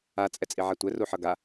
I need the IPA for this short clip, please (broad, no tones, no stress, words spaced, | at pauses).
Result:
a t͡sʼɛt͡sʼiʕatʷɛ ruħʌɡa